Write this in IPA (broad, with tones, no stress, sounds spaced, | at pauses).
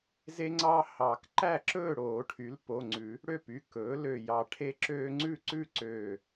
z e˦ ŋ͡ǀ ɑ˦ h ɑ˨˩˦ k ǃ æ˥˨ ǁ ɵː˥˨ ɽ oː˨˩˦ ʈʰ y˩˥ l p o˩˧˩ ŋ͡ǀ ʉ˨˩˦ | ɽ ø˥˨ p y˩˧˩ k ɵː˩˥ l ø˧˩ j ɑ˧˩ ʈʰ e˦ ǁ øː˦ ŋ͡ǀ ʉ˥˨ ǀ ʉ˥˨ ǀ øː˧˩